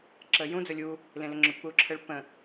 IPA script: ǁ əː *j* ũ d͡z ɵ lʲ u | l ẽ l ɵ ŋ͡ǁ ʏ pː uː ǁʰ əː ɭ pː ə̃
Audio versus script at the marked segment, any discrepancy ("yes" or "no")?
no